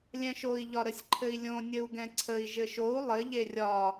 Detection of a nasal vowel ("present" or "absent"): present